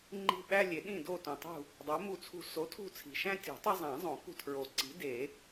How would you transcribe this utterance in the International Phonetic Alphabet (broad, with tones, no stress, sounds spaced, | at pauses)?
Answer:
ŋ͡ǃ i̤˦˨ ɓ æ˦ lʲ e˨˩˦ ɗ ĩ˦˨ d o˦˨ t ũ˨ tˤ ṳ˦˨ | dˤ o˨˥ m u˦˨ t͡sʰ ṳ˦˨ s o˨˥ tʰ ṳ˦˨ t͡sʰ i̤˨ ʃ æ̃˦ tʲ ṳ˨˩˦ tˤ e˦ zˤ æ̃˨˩˦ zˤ õ˨˩˦ k ṳ˦˨ tʰ ɹ o˨˩˦ ǀ i̤˨˥ d e˨˩˦